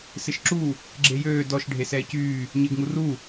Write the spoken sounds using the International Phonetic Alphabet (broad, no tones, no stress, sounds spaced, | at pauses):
s ɪ ʃ ǁ u | ɡ͡ǁ e j øː d ɔ ʃ ɖʱ e s ɛː c yː | ɲ ɪː ɡ ŋ u r u